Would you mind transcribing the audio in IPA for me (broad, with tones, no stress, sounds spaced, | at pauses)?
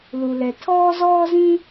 l u˩ l ɛ˩ tʰ ɔː˥ z ɔː˥ z ĩ˥